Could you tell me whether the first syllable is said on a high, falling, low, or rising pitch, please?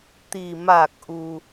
low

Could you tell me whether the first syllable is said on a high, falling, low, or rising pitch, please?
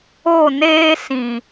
falling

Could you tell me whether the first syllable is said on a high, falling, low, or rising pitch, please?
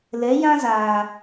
rising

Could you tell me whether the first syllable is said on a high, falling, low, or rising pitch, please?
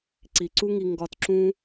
low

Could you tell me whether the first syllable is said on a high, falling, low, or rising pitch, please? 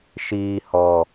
low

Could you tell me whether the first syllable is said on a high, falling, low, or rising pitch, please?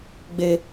high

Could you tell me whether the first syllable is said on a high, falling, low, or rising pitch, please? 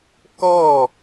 falling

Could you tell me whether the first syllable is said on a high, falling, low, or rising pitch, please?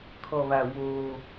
low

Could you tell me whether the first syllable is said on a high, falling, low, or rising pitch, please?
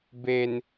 low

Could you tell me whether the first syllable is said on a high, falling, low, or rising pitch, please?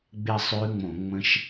falling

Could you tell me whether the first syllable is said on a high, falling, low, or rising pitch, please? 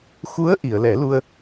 rising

